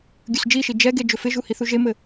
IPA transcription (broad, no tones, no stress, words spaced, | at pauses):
ɡʲɵsd͡ʒiʃi d͡ʒɛɡe d͡ʒɵfɪʒu hiθuʒemɘ